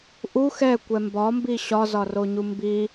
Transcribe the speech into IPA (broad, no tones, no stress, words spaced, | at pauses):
ʔu xɛkʷɛ mbɒmbi ɕɒzɒroɲu mbi